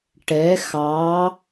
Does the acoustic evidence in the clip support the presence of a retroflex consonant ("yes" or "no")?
yes